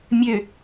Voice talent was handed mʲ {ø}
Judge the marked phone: correct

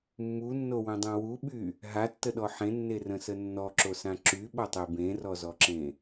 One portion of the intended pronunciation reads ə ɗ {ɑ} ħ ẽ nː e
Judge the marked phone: incorrect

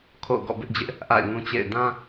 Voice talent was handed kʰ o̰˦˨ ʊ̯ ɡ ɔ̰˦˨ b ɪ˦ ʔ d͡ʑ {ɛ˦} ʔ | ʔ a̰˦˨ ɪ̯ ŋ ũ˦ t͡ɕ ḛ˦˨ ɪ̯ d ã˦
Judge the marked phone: incorrect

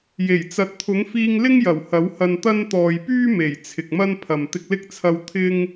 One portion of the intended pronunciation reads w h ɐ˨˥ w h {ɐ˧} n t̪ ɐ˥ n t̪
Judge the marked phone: correct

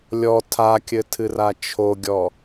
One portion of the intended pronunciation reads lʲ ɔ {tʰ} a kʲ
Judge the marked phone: correct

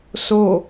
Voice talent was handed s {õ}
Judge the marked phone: incorrect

